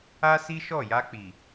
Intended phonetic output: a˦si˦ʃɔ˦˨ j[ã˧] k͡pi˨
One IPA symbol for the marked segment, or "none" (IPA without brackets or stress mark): a˧